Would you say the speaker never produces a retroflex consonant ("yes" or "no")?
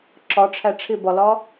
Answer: no